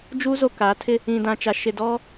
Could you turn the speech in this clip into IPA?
d͡ʒu˦ zo˨ kaː˨˦tʰɪ˦ | ĩ˨dã˨t͡ʃa˨ ʃɪ˨dɔ˦

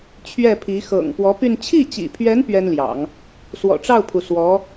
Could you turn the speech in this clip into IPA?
t͡ɕʰɥɛ˥˩pʰi˧˥ xɤ̰˨˩ŋ pwɔ˧˥py˥˧n t͡ɕʰi˥˩t͡ɕḭ˨˩pʰɥɛ˧˥n pɥɛ˥nljɑ̰˨˩˦ŋ | swɔ̰˨˩ʈ͡ʂɑ˥˩ʊ̯pʰu˩ swɔ˧˥

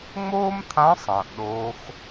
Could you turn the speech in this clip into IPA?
ŋ͡moː˥mt̪ʰã˧˥ sˤɐ̃ː˩ʔɗoː˧˥x

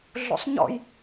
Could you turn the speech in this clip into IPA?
ɮṵsˤɲɔ̰j

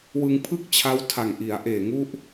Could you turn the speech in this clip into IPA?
wɯ˧ŋpʰɯ˥˩k̚t͡ɕʰa˦˥w tʰa˨˩ŋʔi˩˦a̯ ʔeː˨˩ŋu˦˥ʔ

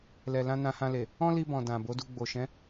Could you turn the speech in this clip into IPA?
lɛ˨lã˧ nã˧hã˧le˨ | ɔ̃˦li˧bɔ̃˨ dã˨bo˨˦du˧ ɡ͡bo˨ ʃɛ̃˨˦

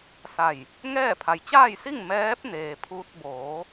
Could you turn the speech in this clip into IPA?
sa˧˩j | ŋɛː˥˨ pʰa˩jt͡ɕaː˥˨jsi˥˨ŋ mɛː˧˥p̚ neː˩pʰuː˧t̚ boː˩˧

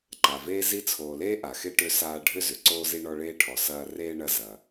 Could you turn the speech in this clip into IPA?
ǃa˩veː˥ zi˦t͡sʰoː˨leː˥ʔa˩ xe˥ʈø˦ saː˦ ɖʱʏ˥ zʏ˩ǀoː˥zi˥ ɳɔ˦ɭeː˥ʈʰɔ˨ sɐː˦ reː˥ɳɐ˦ zɐ˨

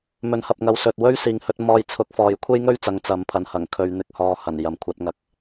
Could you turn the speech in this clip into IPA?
mɵ˨˥nhɐ˨p̚ŋɐ˨˧w sɵ˨t̚wɵ˥ɥ siː˨ŋhɵ˧t̚ mɔː˧jt͡sʰʊ˨˥k̚ fɔː˨jkʷʰe˥jŋɵ˥ɥt͡sɐ˨˧ŋ t͡sɐ˨˥mpʰɐ˨n hɐ˨˩ŋkʰɵ˨ɥn̪ɪ˨k̚hɔː˨ hɐ˨˩n jɐ˨mkʷʰɐ˧t̚ŋɐ˨k̚

